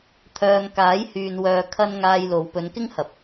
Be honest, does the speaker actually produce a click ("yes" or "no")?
no